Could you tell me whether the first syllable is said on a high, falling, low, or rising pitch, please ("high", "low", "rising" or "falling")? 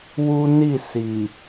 high